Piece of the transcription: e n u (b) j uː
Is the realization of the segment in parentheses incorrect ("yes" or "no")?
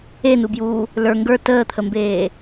no